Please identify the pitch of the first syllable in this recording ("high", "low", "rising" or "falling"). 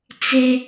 high